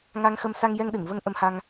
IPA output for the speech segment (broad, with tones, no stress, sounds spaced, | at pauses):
ŋ a˧ ŋ x ə˧ m s a˧ ŋ j ɛ˧ ŋ ɗ ɨ˨˩˨ ŋ v ə˧ ŋ ʔ ə˧ m h a˧ ŋ